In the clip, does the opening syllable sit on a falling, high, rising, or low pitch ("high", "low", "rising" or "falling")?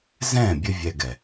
falling